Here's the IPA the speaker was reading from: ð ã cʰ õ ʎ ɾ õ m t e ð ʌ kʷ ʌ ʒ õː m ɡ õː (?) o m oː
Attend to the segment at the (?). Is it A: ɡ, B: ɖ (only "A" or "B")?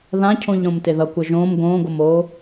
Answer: A